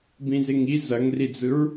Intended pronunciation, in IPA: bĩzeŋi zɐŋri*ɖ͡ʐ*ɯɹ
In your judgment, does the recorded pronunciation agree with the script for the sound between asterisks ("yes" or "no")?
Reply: no